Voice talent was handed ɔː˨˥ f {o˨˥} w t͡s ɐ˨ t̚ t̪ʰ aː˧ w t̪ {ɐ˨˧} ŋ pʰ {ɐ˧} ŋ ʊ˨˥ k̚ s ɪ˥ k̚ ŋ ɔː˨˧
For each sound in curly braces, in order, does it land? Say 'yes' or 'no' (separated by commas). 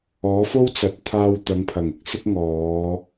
no, yes, no